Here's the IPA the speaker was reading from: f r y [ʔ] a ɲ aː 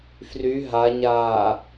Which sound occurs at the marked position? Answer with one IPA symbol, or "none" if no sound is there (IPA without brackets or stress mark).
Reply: ɦ